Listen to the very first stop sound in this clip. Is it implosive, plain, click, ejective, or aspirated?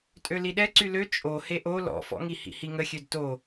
ejective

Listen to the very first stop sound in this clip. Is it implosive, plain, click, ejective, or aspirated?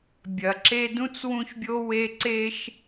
plain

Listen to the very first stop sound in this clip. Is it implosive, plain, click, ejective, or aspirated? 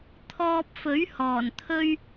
aspirated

